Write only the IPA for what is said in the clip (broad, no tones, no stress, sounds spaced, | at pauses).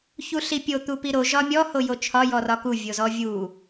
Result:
ç u ɬ i pʲ o t̪ u p i ɾ o ʒ ɒ mʲ ɔ h o j o t͡ʃʰ ɒ j ɔ r ɒ k u vʲ o z ɔ vʲ u